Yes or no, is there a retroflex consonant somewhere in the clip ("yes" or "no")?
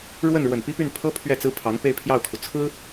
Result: yes